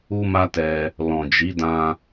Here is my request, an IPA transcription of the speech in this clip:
u˦ m a˦ t ɛ˧ | l ɔ̃˨ d͡ʒ i˨˦ d ã˧

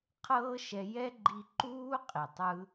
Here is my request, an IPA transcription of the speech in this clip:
qʰ ɤː˦ ʃ ɛ˧ j ɛ˦ ɡ͡ǃ i˧ ǃ uː˦ qʼ i˨ tˤ ɯ˦

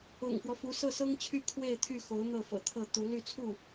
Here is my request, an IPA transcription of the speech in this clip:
ʊ̰˨˩ ŋ f w ɔ˦ f u˧˥ s ɤ˥˩ s ɤ˥ ŋ t͡ɕʰ y˥˧ kʰ w e˥˧ ɪ̯ t̪ʰ y˥˩ x o˧˥ ʊ̯ n̪ ɤ˥˩ f ɤ̰˨˩ t̪ʰ ɤ˥˩ t̪ u˧˥ l y˥˧ t͡sʰ u˥˩

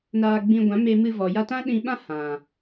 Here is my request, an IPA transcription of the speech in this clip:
n aː˧ ɡ͡b ĩ˧ ɡʷ ã˨˦ m e˧ m ɨ˧ v ɔ˨ j a˧ t ã˦ ɗ ĩ˧ ɓ ã˦ h ã˨

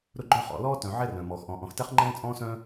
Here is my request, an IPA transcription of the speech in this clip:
ɾ ʊ˥ ɡ͡ǃ œ˥ χ ɔ̰˨ l ɔː˥ t œ̃˨ ʕ ɛ˥ r œ̃ː˩ m ɔː˩ x ʔ ɔ̃˨ ʔ ɔ̃˨ x t ɛ˥ χ ŋ͡ǃ ɛ̃ː˥ t͡sʼ ɔ̃ː˥ s œ̃ː˥

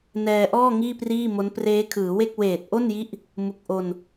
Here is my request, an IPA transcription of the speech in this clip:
n ɛː˧ ʔ ɔː˥˩ ŋ iː˥˩ p r iː˥˩ m o˦˥ n p r eː˦˥ kʰ ɯː˩˦ w e˥˩ k̚ w eː˨˩ t̚ ʔ o˥˩ n j i˦˥ ʔ | m u˨˩ k̚ ʔ o˧ n

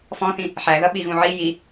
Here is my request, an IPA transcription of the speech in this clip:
f ɔ̃ θ ĩ | ħ æ ð ʌ ɓ i ɣ ũ ʕ i j i

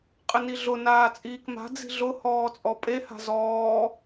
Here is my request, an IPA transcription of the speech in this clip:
qʼ ɪ n i ɮ ʊ n aː t͡sʼ iː k m a̤ d͡z i̤ ɮ ʊ h ɔː t͡sʼ ɔ pʼ e h a̤ z ɔː

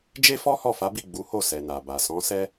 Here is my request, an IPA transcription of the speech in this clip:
d͡ʒ e˦ f ɔ˦ h ɔ˦˨ f a˨˦ b i˦˨ ɡ͡b u˨˦ h o˦˨ s ɛ˨ n a˨ b a˨ s ɔ̃˨˦ s ɛ˦

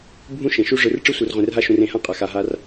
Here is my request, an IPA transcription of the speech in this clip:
bʱ ũ˥ ʃ ẽ˩ ʃ u˥ ʐ ɯ˨ r ʈ͡ʂ ɯ˦ sʷ ɯ˨ r ʁʷ ẽ˨ r ɦ a˥ ʃ ũ˨ r ẽ˩ h ã˥ qʼ a˨ x a˨ ɦ a˥ r

